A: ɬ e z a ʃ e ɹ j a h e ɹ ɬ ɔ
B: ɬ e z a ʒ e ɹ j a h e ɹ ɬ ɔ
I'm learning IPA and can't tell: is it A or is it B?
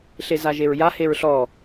B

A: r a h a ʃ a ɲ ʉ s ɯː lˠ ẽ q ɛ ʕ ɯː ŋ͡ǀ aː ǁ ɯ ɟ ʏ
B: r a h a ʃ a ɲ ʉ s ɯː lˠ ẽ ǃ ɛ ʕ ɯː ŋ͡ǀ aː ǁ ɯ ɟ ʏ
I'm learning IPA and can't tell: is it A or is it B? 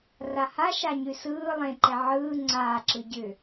B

